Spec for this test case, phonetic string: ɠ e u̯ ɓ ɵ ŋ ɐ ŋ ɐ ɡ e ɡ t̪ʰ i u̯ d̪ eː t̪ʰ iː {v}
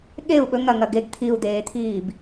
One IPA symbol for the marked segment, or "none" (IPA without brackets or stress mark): b